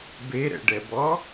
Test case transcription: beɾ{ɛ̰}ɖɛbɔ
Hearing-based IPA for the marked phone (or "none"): ɛ̰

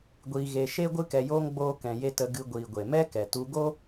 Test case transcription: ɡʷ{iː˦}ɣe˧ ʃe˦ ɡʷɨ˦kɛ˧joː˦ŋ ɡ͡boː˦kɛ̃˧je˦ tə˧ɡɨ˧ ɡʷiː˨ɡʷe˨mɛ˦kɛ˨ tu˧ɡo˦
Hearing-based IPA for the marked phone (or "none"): iː˧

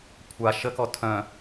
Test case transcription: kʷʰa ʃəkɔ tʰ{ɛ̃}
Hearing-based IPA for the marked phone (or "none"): œ̃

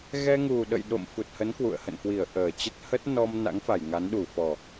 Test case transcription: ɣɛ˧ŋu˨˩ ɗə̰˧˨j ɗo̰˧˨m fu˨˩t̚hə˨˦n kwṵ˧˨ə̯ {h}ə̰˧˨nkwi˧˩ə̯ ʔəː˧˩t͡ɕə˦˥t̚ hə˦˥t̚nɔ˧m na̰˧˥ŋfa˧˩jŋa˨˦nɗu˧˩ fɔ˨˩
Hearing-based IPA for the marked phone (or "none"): h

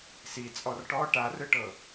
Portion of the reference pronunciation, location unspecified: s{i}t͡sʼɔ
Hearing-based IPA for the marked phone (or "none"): i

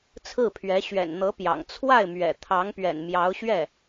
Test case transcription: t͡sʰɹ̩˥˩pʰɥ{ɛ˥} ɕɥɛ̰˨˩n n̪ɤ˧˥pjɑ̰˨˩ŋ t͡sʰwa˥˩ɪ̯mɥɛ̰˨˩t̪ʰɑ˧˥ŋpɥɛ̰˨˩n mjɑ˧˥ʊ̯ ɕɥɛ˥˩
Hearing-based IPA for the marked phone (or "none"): ɛ˧˥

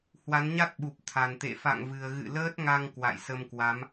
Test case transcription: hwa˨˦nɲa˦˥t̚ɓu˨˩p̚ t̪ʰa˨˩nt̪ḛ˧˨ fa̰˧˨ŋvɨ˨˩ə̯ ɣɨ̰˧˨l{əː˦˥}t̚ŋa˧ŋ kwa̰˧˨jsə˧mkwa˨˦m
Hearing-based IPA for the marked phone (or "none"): əː˦˥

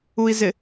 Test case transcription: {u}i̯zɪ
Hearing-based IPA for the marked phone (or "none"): u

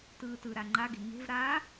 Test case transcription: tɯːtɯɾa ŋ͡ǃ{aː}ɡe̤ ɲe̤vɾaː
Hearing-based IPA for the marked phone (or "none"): a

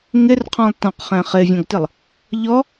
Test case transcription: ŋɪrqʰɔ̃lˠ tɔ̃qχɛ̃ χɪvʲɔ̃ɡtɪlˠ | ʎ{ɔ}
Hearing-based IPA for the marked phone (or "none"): ɔ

